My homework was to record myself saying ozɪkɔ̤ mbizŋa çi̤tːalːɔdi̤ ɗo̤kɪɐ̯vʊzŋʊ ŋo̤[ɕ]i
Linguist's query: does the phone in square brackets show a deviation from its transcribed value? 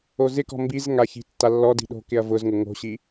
no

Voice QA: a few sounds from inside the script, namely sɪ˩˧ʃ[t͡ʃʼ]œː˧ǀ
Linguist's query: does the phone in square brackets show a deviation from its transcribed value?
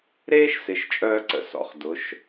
no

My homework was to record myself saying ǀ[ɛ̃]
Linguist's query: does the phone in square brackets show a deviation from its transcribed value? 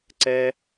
yes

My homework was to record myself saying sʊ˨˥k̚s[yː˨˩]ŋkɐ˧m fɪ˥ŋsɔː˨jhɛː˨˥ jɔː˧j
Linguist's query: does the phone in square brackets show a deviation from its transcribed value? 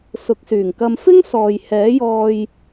no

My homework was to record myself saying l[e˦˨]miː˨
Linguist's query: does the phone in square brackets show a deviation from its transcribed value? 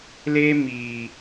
yes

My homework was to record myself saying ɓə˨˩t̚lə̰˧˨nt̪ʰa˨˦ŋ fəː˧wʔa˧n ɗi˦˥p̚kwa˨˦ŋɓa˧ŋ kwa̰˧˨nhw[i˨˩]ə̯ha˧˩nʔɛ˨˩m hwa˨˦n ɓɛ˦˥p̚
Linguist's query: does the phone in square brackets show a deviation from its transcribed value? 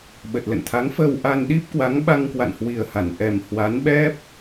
no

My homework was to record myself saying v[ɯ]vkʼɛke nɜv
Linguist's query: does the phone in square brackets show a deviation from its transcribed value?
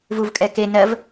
yes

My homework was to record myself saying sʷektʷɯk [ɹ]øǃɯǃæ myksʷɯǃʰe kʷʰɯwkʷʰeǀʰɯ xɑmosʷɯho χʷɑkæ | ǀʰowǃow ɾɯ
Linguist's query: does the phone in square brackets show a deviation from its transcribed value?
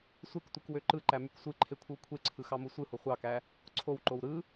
yes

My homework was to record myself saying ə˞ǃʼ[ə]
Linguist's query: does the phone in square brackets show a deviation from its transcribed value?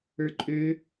yes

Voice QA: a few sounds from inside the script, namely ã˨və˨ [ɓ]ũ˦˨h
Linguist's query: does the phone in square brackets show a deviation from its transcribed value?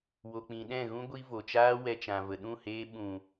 yes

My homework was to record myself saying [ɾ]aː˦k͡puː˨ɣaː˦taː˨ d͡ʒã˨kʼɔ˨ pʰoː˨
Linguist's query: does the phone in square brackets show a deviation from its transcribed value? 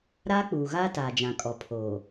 no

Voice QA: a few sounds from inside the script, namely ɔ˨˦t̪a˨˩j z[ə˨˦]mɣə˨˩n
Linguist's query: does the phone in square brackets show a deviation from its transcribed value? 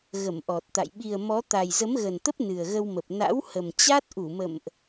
no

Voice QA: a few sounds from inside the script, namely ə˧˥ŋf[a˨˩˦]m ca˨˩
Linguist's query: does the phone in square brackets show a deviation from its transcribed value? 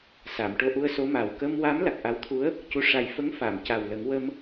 yes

